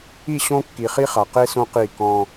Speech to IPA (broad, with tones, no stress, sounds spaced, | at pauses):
i˦˨ ɕ õ˦ kː i˨ χ i˦ χ a˨ q e˦ s õ˦ q i˦˨ k ɔ̃˦